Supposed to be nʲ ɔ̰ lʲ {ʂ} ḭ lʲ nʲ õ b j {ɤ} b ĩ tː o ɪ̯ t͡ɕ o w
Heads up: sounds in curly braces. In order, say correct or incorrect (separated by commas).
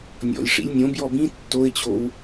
correct, incorrect